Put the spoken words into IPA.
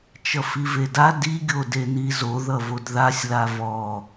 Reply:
t͡ʃ ʌ f i v e d a d i ɡʲ o d e n i z o ð ʌ v o d ð a sʲ l a v ɔ

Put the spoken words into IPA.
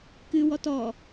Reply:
k ɨ w ɔ t ɔ

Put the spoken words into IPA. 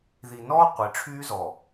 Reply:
ð i˨ n ɔː˦ qʷ i˨˦ ʈ͡ʂʰ yː˦ z ɔ˨

